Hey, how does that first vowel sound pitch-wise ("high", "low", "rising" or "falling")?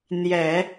low